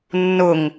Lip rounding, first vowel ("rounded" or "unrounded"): rounded